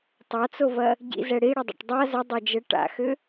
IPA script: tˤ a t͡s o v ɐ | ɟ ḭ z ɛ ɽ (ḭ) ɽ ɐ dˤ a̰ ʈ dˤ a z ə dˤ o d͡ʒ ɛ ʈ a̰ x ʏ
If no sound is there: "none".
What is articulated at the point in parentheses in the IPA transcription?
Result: i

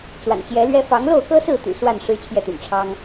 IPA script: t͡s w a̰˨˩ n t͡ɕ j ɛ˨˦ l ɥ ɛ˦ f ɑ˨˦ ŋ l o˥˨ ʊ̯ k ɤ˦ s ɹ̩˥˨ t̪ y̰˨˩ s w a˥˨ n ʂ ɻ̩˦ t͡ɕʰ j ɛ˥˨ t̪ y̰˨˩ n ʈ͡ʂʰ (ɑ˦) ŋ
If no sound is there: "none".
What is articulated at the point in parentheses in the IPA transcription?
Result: ɑ˦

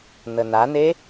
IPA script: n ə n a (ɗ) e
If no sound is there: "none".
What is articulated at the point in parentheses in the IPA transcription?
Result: n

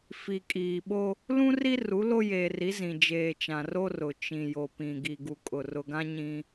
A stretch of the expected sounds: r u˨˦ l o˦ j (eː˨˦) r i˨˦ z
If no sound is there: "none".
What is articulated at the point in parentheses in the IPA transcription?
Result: eː˨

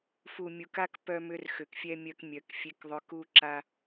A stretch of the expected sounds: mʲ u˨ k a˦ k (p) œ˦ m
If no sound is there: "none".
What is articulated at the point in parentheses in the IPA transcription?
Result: p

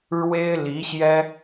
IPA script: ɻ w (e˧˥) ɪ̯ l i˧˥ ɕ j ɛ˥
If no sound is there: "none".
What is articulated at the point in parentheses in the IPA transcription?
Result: e˥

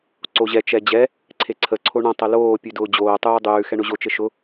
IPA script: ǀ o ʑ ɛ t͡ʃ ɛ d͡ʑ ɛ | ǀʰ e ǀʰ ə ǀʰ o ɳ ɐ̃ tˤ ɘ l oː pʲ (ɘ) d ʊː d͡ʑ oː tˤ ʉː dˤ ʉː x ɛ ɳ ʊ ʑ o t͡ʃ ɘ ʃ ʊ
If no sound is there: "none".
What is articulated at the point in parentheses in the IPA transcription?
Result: ʉ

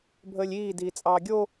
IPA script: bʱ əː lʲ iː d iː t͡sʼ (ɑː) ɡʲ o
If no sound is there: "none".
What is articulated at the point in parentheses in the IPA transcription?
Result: ɑː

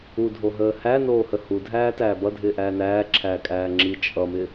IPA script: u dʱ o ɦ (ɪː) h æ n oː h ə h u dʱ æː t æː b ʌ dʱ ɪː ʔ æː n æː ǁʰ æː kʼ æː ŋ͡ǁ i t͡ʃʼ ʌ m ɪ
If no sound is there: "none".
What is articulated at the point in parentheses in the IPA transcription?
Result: əː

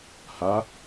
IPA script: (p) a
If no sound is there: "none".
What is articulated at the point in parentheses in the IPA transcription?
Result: h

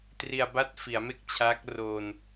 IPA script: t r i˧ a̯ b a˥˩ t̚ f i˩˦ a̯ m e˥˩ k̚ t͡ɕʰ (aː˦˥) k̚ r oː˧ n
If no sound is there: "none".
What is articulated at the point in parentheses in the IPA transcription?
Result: aː˦˥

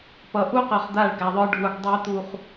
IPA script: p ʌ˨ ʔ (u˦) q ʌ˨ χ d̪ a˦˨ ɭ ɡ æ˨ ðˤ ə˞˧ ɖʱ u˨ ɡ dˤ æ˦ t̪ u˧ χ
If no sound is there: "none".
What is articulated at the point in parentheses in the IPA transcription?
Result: u˦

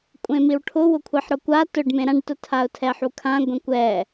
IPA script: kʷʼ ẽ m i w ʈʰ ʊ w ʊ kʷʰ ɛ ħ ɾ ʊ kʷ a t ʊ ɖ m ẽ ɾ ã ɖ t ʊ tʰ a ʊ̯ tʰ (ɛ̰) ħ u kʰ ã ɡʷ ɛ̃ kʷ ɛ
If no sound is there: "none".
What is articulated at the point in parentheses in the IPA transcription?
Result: ɛ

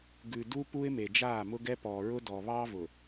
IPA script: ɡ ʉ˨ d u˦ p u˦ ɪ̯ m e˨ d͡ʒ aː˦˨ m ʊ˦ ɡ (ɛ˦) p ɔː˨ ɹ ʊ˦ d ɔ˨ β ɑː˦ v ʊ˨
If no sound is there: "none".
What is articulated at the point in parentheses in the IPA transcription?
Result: ɛ˦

